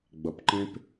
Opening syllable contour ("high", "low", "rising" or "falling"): low